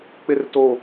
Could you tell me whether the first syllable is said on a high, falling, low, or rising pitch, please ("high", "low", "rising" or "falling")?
low